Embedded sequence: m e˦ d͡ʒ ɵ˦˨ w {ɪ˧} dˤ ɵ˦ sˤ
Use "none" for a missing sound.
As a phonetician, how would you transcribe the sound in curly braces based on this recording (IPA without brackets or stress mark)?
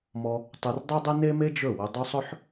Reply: ɪ˧